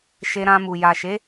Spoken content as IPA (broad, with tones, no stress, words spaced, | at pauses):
ʃe˧ɾã˧mu˨ ja˨ʃe˨˦